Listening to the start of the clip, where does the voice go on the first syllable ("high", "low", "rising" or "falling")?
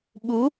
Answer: rising